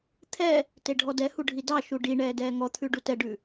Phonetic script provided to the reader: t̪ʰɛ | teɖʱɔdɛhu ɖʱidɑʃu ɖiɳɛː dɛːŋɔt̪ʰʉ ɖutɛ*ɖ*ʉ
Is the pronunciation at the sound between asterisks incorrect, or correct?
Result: correct